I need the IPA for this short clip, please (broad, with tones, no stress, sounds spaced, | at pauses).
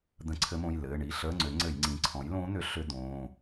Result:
d̪ ə̃˧˥ ǀʰ ɘ˧˥ m õ˩˧˩ j l ɘː˩˧˩ ɳ i˧˥˧ ɬ əː˧˥˧ ŋ͡ǀ ʏ˩˥ ŋ͡ǀ ɘ˧˩˧ j ŋ͡ǀ ĩ˩˥ ǀʰ ɔ̃˩˥ j l õː˧˥ n̪ ʏ˩˥ ɬ ʏ˧˥˧ d̪ õː˩˧˩